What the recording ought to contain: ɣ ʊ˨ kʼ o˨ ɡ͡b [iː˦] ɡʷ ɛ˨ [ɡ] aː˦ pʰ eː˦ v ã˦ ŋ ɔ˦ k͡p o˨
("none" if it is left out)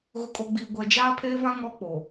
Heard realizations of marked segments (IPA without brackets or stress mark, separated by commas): iː˨, d͡ʒ